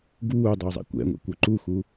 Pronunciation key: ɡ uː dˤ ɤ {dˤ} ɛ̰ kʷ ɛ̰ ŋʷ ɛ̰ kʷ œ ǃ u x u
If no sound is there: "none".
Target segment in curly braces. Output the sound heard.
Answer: zˤ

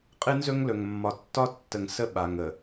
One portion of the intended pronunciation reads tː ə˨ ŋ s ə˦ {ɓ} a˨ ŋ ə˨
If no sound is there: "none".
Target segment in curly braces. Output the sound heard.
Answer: ɓ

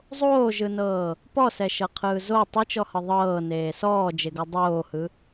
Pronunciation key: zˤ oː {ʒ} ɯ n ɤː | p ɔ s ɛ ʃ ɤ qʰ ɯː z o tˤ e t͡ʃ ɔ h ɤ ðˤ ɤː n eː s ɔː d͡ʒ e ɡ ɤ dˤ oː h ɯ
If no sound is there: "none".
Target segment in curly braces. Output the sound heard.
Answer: ʒ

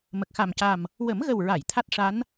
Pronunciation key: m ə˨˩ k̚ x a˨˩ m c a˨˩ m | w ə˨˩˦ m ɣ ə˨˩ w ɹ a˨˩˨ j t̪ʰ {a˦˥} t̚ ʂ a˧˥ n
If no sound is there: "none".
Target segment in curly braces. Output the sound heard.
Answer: a˦˥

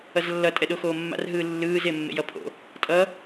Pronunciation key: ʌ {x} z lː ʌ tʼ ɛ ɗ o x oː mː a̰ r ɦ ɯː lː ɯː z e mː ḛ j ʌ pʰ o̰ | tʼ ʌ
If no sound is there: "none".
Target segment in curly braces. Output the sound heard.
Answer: none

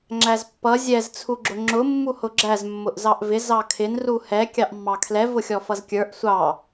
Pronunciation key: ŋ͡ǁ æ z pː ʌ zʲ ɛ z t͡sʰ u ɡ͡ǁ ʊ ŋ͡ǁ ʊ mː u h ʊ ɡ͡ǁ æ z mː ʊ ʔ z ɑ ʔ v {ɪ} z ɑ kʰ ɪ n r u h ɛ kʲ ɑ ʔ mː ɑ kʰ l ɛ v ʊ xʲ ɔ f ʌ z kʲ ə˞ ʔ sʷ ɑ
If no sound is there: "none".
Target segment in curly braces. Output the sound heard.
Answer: ɪ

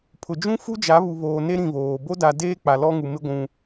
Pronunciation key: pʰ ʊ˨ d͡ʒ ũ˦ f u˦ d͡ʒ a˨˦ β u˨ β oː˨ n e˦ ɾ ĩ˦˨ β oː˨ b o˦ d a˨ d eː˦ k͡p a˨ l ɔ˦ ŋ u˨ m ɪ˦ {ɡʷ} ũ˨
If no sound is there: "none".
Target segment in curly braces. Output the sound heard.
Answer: ɡʷ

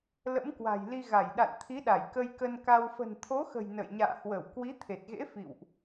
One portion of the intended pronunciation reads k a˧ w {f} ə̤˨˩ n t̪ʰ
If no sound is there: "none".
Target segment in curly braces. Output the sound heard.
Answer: f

